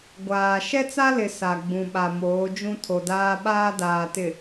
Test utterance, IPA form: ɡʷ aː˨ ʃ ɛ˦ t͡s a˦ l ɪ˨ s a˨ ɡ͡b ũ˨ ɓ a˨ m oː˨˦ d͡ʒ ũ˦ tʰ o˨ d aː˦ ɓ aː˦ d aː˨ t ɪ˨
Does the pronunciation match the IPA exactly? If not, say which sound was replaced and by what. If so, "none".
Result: none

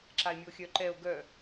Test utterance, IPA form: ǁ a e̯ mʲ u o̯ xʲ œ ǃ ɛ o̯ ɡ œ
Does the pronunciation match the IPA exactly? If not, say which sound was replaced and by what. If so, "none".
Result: none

